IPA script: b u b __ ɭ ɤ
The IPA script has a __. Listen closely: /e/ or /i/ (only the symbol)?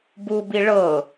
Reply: i